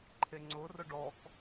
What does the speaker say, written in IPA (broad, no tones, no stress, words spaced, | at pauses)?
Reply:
ǃʰeŋ͡ǀʊrʊ ɖɔk